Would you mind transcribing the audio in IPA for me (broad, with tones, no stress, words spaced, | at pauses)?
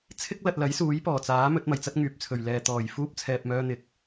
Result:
t͡sʰɪ˥k̚lɐ˨t̚lɐ˨˥j suː˨˥jpɔː˨˩t͡saː˨˥ mɵ˨˥t̚mɐ˨˩jt͡sɐ˥t̚ ŋyː˨p̚t͡sʰɵ˨˩ɥlɛː˨ t̪ɔː˨˩jfuː˥p̚ t͡sʰɛː˧p̚mœː˥n̪ɪ˨k̚